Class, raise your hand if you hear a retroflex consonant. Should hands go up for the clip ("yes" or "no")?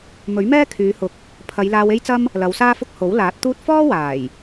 no